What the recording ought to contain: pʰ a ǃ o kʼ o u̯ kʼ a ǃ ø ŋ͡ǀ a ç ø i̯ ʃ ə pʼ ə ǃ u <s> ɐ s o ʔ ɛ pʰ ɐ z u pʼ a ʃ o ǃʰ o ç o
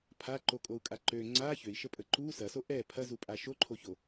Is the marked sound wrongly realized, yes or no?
no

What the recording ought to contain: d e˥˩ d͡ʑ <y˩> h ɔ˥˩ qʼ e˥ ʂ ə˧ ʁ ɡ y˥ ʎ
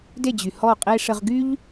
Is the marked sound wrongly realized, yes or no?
no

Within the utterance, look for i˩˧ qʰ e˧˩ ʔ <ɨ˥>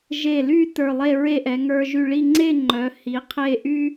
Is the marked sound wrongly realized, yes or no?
yes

